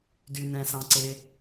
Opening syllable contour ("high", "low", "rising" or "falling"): low